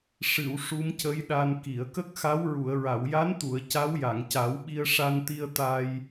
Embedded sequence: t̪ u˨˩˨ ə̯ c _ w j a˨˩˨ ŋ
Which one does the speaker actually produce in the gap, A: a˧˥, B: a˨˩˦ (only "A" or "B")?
A